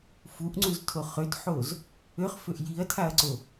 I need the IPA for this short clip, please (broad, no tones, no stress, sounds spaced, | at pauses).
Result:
f u ʔ ŋ͡ǀ u z tʰ o χ ø t ħ o z | ø χ f ø ʔ j i ɐ̯ tʰ a ɐ̯ ǀ o